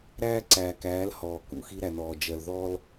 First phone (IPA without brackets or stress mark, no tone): ɾ